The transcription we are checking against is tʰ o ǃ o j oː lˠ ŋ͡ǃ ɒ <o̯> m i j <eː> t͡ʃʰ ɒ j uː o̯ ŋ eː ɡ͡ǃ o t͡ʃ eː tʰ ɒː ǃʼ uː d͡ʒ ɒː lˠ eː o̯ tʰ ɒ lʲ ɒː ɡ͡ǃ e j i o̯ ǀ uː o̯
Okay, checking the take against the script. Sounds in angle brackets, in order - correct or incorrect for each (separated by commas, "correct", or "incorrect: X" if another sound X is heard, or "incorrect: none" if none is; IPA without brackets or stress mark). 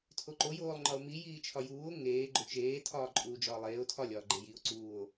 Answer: correct, incorrect: iː